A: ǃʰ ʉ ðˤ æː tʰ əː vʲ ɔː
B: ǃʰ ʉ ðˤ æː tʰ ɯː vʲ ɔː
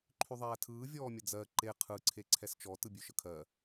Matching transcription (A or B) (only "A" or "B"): B